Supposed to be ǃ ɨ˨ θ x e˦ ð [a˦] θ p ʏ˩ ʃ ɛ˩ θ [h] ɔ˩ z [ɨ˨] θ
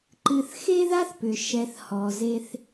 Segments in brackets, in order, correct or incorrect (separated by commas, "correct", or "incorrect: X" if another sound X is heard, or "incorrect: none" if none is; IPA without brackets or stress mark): correct, correct, incorrect: e˨